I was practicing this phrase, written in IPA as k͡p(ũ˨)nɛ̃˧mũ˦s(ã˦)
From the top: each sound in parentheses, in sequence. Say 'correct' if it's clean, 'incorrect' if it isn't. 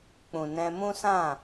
correct, incorrect: ã˦˨

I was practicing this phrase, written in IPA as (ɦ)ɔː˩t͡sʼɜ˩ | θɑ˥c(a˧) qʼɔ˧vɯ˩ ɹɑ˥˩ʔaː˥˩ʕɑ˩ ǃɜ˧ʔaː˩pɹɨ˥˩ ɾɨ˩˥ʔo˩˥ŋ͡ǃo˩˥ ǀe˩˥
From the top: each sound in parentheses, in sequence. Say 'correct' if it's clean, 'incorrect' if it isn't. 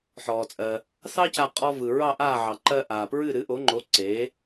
incorrect: ħ, correct

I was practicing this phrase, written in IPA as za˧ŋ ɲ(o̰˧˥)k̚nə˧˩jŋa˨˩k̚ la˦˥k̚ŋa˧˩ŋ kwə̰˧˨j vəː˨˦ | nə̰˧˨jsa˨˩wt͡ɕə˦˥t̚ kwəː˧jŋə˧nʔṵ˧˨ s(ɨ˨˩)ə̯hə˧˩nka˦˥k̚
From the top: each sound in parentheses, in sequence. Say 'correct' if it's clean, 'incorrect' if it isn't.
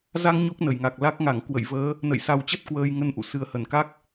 incorrect: o˦˥, correct

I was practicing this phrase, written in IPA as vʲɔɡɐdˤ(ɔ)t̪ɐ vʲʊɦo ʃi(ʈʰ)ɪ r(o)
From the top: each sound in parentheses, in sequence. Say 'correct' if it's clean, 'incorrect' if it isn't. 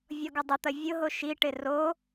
incorrect: ʊ, incorrect: ʈ, correct

